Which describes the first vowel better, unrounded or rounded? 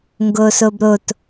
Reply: rounded